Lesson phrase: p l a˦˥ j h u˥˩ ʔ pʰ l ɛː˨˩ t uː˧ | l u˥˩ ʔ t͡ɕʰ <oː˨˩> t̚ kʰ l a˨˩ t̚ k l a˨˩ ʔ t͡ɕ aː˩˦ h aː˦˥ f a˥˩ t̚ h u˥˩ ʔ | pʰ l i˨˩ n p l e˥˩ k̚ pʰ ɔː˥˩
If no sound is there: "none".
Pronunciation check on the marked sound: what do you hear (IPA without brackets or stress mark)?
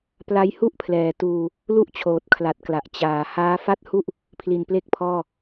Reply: oː˨˩